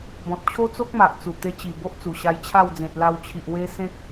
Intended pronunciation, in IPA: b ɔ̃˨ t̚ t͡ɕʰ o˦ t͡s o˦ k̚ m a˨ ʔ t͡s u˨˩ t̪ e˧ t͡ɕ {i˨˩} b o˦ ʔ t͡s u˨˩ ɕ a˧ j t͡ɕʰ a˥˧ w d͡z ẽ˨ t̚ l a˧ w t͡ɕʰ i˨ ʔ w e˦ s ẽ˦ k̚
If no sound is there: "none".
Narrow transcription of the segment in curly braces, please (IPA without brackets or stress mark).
i˨˩